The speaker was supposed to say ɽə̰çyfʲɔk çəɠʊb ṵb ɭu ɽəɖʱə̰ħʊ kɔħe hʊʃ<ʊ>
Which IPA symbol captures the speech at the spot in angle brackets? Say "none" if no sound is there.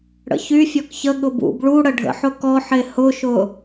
ʊ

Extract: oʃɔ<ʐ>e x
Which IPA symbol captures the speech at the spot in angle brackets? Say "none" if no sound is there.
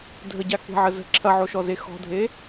z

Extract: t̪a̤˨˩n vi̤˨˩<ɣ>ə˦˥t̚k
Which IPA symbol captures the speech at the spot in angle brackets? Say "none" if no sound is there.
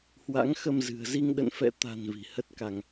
h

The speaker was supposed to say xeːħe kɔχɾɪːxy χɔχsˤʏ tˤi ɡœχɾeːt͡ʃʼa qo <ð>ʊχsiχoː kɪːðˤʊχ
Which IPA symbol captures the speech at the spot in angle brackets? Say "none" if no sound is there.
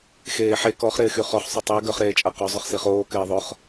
zˤ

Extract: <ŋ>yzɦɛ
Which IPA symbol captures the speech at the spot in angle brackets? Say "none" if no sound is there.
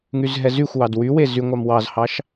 ŋ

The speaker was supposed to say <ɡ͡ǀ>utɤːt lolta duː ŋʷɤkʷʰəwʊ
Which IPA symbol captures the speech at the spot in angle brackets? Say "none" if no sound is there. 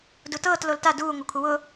d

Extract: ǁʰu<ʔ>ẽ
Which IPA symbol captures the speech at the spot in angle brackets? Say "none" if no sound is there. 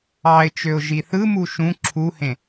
h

